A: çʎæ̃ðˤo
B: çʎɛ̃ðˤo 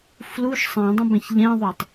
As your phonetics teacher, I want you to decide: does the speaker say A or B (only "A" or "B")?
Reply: B